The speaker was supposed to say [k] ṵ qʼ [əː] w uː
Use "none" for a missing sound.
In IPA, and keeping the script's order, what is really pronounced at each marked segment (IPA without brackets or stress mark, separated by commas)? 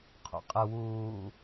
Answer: qʰ, ə